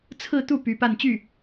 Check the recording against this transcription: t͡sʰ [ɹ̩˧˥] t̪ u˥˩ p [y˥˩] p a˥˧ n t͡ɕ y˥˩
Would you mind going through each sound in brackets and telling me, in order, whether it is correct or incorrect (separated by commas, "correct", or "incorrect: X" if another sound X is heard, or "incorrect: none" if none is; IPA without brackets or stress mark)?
incorrect: ɹ̩˥˧, incorrect: y˧˥